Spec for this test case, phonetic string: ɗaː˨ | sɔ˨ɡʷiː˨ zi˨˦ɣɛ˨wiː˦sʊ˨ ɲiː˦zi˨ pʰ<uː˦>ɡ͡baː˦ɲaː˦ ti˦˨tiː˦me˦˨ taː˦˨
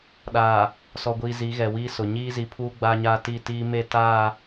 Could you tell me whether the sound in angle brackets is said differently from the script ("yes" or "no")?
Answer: no